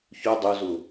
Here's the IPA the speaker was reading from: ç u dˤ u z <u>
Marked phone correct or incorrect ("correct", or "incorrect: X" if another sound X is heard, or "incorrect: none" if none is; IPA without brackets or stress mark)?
correct